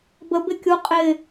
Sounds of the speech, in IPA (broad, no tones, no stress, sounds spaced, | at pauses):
b ə b ɪ kʲ u qʼ ɪ